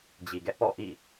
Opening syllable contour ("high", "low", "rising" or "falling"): low